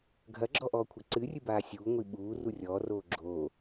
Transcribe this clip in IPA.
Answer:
ɡʱ ɐ ɡ͡ǁ ɔ ʔ ɔː kʷʰ ɐ ǀ ɨ rʲ ɨ b aː sʲ uː ŋʷ i ɓ uː r u rʲ ɔː r oː ɡ͡ǁ oː

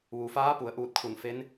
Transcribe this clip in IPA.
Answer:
ʋ u˩ f aː˧˥ p u˩˧ ə̯ ʔ uː˧ t̚ kʰ u˧˩ n f e˧˥ n

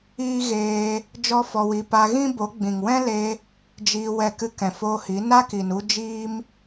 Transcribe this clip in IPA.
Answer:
iː˦ ɣ eː˧ | d͡ʒ ɔ˦ f ɔ˧ w i˧ p a˧ ɣ ĩ˦ b o˨˦ ɡ͡b ĩ˨ ŋ w ɛ̃˦ l e˧ | d͡ʒ iː˧ w ɛ˦˨ k ɨ˦ k ɛ̃˨ f oː˧ h i˨˦ n a˦ k i˨ n u˦ d͡ʒ iː˦ m

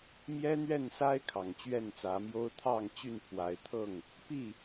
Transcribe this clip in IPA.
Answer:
m j ɛ˦ n̪ ɥ ɛ˥˨ n s a˦ ɪ̯ kʰ ɑ˨˩ ŋ t͡ɕ ɥ ɛ˥˨ n t͡s ä˨˦ m j o˦ ʊ̯ t̪ʰ ɑ˥˨ ŋ t͡ɕ y˥˨ n pʰ w a˨˦ ɪ̯ t̪ʰ ɤ˥˨ ŋ | p i˥˨

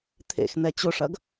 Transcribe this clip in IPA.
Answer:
t̪ʰ ḛ x n ɛ t͡ɕ ʊ ʂ ɐ ɡ

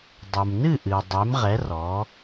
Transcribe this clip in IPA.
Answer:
dˤ u˩ m n ɨ˥˨ ʔ ɨ˩ o̯ dˤ e˨˥ m ʁ ɛ˨˥ r ɔ˩˧

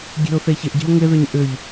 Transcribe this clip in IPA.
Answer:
ɡʲ e̤ ʊ̯ θ e ç ɪ ʔ ɟ e̤ ʊ̯ ŋ ɪ ð ʏ ɲ ʔ ʏ ʎ

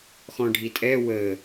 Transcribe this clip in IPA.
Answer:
x ɔ̃ ɖʱ i tʼ ɛ w ə

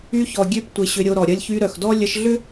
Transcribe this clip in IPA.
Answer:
y˧ ç ɔ˨ ɡʲ ø˧ p tʷ ɪ˨ ɕ ʏ˧ ɾʲ o˧ ɾ ɔ˨ ɾʲ ɐ˧ lʲ ç y˧ ɾ œ˨ x d ɔ˦ lʲ ə˧ ʃ ɮ ʏ˦

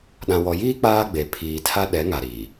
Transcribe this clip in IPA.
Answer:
ɗ ã˨ w ɔ˨ j iː˦ k͡p aː˦ ɡ͡b e˨ pʰ iː˨ tʰ a˦ ɗ ɛ˨˦ ŋ a˨ ɾ iː˨

